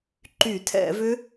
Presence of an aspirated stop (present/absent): present